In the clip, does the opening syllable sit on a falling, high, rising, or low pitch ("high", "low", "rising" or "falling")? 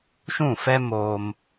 falling